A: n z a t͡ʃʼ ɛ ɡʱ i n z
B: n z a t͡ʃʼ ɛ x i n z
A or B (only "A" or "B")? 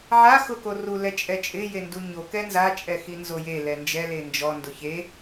B